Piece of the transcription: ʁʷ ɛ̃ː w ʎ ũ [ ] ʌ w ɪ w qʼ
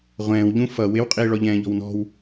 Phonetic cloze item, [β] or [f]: f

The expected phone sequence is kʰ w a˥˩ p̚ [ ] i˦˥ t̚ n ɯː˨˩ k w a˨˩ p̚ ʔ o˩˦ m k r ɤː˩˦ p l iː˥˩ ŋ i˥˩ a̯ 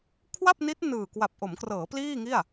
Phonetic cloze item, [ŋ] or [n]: n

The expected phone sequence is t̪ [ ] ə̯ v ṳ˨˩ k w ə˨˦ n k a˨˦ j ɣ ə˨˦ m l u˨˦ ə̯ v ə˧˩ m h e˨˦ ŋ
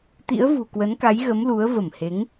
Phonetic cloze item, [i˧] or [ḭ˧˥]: ḭ˧˥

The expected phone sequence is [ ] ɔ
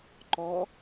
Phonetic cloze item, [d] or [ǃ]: ǃ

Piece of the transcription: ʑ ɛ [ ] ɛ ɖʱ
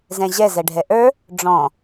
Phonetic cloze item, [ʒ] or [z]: z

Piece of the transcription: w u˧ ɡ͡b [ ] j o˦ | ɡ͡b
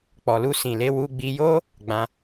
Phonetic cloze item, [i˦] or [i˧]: i˧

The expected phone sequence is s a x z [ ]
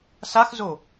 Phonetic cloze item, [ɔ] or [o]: o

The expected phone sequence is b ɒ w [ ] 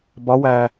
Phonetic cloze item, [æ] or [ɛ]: æ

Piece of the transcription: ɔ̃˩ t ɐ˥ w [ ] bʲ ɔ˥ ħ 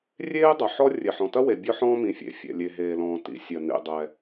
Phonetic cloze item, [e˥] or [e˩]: e˩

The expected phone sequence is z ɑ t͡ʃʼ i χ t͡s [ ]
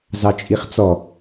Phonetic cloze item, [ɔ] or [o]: ɔ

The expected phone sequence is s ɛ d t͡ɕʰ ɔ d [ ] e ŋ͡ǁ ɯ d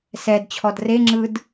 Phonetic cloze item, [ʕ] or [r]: r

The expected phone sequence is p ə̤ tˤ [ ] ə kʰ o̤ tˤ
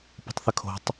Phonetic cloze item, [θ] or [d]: θ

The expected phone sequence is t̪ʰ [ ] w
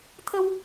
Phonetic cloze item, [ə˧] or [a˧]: ə˧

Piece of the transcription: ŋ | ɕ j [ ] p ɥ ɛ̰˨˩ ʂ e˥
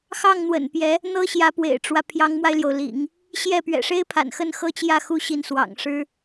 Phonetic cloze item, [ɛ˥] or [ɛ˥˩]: ɛ˥˩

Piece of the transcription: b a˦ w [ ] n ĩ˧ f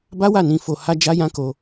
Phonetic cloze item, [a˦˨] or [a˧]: a˦˨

